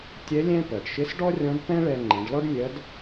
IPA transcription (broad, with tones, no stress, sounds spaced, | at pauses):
tʲ ɛ˧˥ lʲ ɛ̃˥ p ɜ˩ ɖ ʃ ɪ˧˥ s ɖ ɔ˥ rʲ ɔ̃˧˥ d p ɛ̃˥ ɭ ɛ˧ ŋ͡ǃ ɛ̃˩˧ ɖ l ɔ˥ ɖ mʲ ɜ˧˥ d